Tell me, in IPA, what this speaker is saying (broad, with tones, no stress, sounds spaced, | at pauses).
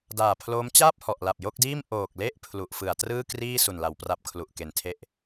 d aː˨˩ pʰ l oː˦˥ m t͡ɕ aː˥˩ p̚ h ɔ˨˩ ʔ l a˨˩ p̚ j o˥˩ k̚ d iː˥˩ m ʔ oː˨˩ k̚ l e˥˩ ʔ pʰ l u˨˩ ʔ f ɯ˨˩ a̯ t r ɯː˥˩ k r iː˥˩ s u˨˩ n l a˩˦ w p r a˦˥ p̚ kʰ l u˨˩ ʔ k e˨˩ n tʰ e˥˩ ʔ